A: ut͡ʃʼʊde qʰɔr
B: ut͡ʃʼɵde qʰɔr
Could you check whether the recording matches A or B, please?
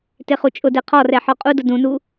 A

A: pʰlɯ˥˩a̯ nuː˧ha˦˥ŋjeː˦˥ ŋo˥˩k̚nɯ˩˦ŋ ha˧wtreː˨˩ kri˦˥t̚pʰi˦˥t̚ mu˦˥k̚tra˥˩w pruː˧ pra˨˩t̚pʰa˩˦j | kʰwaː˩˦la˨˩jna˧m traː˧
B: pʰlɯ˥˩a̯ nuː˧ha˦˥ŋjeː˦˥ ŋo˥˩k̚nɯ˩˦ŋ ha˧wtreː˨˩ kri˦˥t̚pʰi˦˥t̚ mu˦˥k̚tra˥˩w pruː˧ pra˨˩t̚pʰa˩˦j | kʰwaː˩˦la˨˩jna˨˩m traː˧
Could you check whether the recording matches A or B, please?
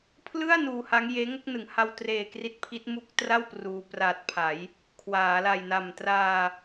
B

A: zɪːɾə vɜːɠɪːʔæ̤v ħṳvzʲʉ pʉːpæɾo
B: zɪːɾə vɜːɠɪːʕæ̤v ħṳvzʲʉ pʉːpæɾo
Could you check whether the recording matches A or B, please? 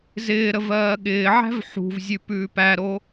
B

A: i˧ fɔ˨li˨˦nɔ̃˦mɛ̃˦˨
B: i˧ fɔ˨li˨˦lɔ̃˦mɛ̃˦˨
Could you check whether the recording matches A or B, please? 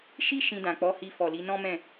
A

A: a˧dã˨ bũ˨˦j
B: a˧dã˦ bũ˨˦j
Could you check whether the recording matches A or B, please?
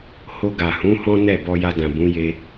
A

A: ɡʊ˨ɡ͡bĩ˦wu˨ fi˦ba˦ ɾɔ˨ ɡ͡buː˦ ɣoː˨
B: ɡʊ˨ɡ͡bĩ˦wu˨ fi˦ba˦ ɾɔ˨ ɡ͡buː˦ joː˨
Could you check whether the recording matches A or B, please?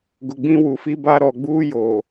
B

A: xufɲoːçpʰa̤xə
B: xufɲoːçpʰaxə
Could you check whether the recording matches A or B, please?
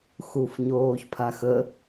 B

